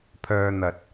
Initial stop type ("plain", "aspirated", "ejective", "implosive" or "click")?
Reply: aspirated